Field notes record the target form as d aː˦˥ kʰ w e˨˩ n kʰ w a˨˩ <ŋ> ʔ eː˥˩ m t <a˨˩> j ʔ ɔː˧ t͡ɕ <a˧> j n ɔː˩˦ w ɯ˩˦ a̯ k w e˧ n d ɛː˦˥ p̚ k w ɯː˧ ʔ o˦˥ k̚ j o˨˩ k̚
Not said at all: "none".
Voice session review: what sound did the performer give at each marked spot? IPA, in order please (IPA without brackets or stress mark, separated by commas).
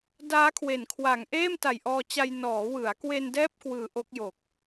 ŋ, a˨˩, a˧